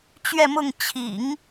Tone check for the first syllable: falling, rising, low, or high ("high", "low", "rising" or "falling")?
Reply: falling